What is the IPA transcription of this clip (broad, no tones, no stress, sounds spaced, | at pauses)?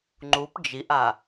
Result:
ŋ͡ǃ u p d͡ʒ i ʔ a